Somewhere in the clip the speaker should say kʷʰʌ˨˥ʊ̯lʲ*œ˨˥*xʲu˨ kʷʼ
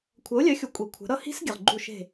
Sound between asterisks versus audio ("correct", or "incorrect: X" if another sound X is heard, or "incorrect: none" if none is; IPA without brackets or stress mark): correct